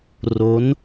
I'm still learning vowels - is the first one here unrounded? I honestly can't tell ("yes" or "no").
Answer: no